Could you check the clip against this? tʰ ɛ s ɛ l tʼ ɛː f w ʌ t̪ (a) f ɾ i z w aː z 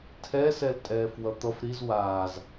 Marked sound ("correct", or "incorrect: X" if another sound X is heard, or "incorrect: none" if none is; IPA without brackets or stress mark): incorrect: ʌ